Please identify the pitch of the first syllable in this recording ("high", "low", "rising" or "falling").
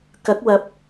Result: rising